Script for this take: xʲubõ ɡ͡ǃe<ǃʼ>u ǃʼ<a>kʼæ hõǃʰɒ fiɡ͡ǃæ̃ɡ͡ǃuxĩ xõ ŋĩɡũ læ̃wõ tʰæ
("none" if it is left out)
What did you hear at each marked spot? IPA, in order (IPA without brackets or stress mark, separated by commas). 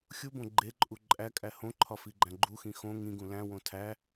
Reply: ǃʼ, æ